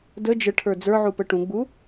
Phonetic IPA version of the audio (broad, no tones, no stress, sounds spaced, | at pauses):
d ə d͡ʒ ə ʈʰ ə˞ d͡z ə˞ ʕ u p ə ʈ ũ ɡ͡b u